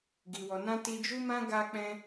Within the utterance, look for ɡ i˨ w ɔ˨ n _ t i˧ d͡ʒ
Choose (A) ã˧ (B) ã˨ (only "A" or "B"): A